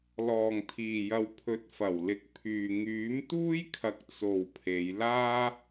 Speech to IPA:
l ɔː˨˩ ŋ t̪ʰ iː˨˩ j ɐ˨ w pʰ ɵ˨˥ t̚ f ɐ˨˩ w l ɪ˨˥ k̚ pʰ yː˨ ŋ yː˨˥ m t̪ uː˥ j kʰ ɐ˨˥ k̚ t͡s o˨ w pʰ e˨˧ j l aː˥

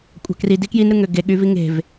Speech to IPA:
kʷʼ ɑ̤ k r i d i k j i n ɾ ɯ ŋ ø ɡ e ɠ y v i ŋ e̤ v

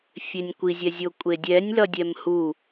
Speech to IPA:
fʲ e nʲ kʷ i zʲ ɛ zʲ o kʷʼ e dʲ ɛ nʲ l ʌ dʲ ɛ m h u

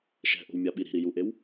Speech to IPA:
ʃ ɛ̤ ʔ o̤ w mʲ a ɓ i ɾ i̤ ɾ i j u ʔ e w

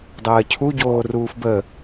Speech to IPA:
dˤ əː cʰ u ɟ oː r uː f b ə

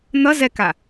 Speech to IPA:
n̪ ʌ z ɛ k a

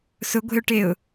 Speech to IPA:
s ʊ ɡʷ e̤ ʊ̯ ʈ e ʊ̯

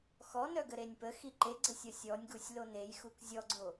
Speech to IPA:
x ɔ n œ ɡ ə ɾ e nʲ p ə x i ǃ e ɡ͡ǀ ə sʲ ɔ sʲ ɔ nʲ ɡ u sʲ l o n e j x u k zʲ ɔ ɡ͡ǀ o

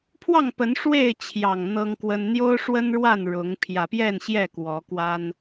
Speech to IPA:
pʰ w ɑ˥˨ ŋ p ə˨˦ n ʂ w e˥˨ ɪ̯ t͡ɕʰ j ɑ˨˩ ŋ n̪ ɤ˦ ŋ k w ə˦ n n̪ j o˦ ʊ̯ ʂ w ə˦ n ɻ w a˥˨ n ɻ ʊ˨˦ ŋ pʰ j ä˨˩ p j ɛ˥˨ n ɕ j ɛ˥˨ k w ɔ˨˦ k w a˦ n

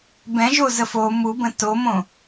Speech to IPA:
b ɛ̃ ʒ o z ə f o m u b ə̃ t o m õ

